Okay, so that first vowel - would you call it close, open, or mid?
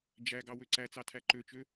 open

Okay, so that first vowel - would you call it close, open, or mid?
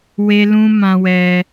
mid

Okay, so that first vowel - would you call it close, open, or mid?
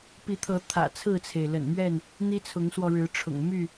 close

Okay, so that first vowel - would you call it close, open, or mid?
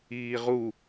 close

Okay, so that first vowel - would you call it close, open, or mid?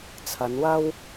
open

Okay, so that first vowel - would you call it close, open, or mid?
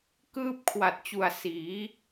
close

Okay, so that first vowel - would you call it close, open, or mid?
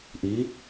close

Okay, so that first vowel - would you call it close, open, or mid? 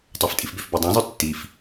open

